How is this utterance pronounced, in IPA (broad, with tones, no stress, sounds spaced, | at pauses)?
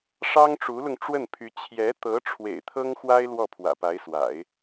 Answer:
ʂ ɑ˥ ŋ ʈ͡ʂ u˧˥ l ʊ˧ ŋ ʈ͡ʂ w ə˥˩ n pʰ y˧˥ t͡ɕʰ j ɛ˧˥ t̪ ɤ˧˥ ʈ͡ʂʰ w ḛ˨˩ ɪ̯ t̪ʰ ɤ˥ ŋ x w a˥ ɪ̯ l w ɔ˥˩ pʰ w ä̰˨˩ p a˧˥ ɪ̯ s w a̰˨˩˦ ɪ̯